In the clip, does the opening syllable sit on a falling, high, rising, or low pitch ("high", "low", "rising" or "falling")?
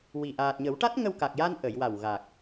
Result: low